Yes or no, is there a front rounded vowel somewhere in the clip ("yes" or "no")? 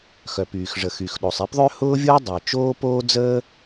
yes